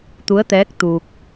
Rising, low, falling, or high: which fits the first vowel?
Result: rising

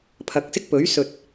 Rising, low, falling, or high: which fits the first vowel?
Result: rising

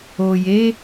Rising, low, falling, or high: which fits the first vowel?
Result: low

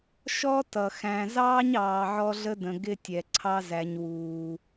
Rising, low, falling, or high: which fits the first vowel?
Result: high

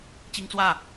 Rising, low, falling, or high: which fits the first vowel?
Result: high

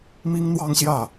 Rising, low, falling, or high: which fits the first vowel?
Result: high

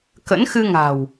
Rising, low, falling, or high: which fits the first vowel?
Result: rising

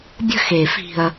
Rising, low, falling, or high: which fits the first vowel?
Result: falling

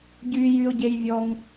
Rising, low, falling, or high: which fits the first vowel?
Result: high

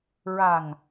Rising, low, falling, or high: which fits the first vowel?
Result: low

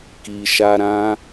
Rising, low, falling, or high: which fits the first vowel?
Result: low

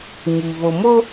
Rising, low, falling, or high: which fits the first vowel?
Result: low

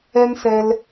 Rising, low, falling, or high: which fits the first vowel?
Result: high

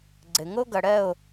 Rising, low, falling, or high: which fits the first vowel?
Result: low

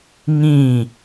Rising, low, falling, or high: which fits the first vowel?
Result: falling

